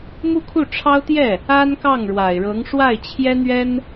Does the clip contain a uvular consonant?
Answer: no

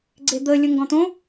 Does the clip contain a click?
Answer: yes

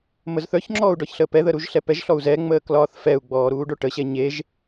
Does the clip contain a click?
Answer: yes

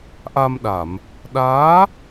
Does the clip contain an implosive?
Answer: yes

